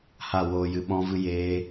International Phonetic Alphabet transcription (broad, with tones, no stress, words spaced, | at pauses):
ha˦˨woː˧ jɨ˧ɓɔ̃˦vɨ˦ jeː˦